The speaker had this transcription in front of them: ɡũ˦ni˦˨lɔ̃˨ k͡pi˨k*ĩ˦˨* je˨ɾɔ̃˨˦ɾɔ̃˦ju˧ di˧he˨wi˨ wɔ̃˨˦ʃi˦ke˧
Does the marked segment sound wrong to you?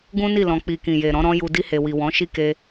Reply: yes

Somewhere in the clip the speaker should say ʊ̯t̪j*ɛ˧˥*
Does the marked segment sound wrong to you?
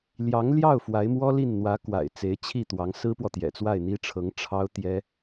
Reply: yes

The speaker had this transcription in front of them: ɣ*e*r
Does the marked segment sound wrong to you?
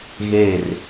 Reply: no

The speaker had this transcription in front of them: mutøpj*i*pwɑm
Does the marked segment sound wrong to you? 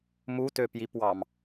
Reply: no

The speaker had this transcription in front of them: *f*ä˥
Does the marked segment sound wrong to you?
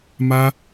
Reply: yes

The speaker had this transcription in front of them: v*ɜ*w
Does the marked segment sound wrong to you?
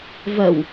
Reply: no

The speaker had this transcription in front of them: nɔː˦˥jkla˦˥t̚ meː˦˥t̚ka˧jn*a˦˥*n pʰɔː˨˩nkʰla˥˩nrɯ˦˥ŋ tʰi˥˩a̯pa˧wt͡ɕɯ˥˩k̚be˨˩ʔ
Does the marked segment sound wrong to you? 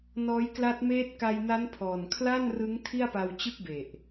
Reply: no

